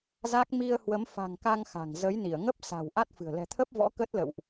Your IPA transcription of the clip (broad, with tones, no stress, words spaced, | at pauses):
za˦˥k̚ mi˧ə̯hwə˨˦mfa̤˨˩ŋka˧ŋ xa̤˨˩ŋ zə˨˦jni˧˩ə̯ŋə˦˥p̚ sa̤˨˩w ʔa˦˥t̚fɨ̤˨˩ə̯ lɛ̤˨˩t̪ʰə˦˥p̚vɔ̰˧˥ kə˦˥t̚lə̰˧˨wʔ